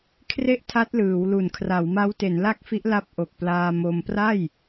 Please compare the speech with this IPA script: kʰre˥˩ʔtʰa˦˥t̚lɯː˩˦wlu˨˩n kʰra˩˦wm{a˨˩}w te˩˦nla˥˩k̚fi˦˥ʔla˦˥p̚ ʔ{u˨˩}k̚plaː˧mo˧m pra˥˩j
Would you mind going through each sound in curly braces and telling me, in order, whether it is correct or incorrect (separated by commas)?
incorrect, incorrect